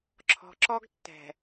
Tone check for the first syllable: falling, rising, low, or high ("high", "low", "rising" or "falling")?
low